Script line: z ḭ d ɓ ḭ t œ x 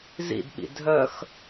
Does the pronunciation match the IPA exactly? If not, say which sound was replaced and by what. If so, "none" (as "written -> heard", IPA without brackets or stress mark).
t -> dʱ